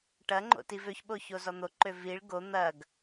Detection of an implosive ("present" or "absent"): present